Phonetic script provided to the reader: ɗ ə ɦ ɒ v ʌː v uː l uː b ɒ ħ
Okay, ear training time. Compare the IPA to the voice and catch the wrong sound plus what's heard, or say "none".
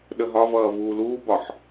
none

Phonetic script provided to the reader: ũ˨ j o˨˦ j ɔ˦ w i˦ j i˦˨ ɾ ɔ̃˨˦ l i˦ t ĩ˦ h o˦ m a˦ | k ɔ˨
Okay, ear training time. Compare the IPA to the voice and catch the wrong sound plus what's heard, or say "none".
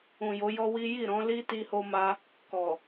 ĩ˦ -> i˦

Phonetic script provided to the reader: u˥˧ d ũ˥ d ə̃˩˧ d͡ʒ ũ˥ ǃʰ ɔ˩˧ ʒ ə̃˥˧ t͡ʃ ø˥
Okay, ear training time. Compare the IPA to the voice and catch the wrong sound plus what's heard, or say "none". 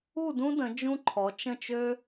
ʒ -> t͡ʃ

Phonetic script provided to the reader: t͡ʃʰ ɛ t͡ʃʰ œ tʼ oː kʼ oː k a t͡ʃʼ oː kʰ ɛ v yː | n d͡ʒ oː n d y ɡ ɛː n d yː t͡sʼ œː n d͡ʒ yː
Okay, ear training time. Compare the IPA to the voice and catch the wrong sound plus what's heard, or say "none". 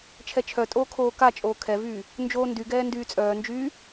kʼ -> kʰ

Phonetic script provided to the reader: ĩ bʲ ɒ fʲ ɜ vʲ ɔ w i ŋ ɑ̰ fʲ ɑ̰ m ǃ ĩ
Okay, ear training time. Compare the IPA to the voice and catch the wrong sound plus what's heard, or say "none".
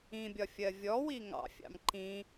none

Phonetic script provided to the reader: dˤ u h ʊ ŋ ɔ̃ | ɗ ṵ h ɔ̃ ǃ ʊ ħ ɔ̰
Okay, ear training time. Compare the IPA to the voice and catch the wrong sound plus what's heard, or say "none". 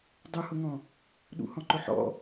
none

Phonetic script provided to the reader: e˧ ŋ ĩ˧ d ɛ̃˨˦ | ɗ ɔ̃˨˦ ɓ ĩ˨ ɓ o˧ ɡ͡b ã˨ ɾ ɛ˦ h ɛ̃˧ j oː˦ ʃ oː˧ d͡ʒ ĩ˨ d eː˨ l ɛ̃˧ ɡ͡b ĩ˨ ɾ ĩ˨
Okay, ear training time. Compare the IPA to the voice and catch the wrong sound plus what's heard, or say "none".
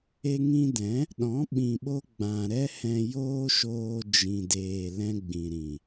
none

